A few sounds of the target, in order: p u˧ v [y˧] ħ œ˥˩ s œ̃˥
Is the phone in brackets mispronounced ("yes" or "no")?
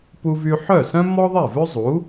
no